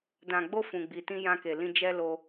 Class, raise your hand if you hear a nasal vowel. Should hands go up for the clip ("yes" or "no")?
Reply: yes